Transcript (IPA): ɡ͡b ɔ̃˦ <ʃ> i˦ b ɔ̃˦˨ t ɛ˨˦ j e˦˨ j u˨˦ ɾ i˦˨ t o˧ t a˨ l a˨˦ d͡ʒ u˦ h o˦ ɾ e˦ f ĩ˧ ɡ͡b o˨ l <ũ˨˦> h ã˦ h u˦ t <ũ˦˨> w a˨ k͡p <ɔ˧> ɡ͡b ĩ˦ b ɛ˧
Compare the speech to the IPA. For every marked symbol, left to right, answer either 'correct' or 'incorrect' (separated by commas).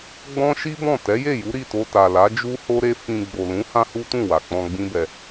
correct, correct, correct, incorrect